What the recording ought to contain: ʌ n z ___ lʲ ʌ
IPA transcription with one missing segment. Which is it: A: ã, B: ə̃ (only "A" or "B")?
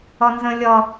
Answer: B